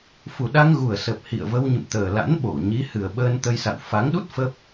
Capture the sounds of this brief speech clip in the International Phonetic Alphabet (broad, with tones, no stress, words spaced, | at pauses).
fu˨˩ɗa˧ŋɣu˨˩ə̯sə˨˩p̚ hḭ˧˨ə̯və˧w ɲɨ̰˧˨mt̪əː˨˩la̰˧˥n ɓo˧˩ ɲi˨˦hɨ˨˩ə̯ɓəː˧n t̪ə˧jsa̰˧˨w fa˨˦ŋɗu˦˥t̚ fə˦˥p̚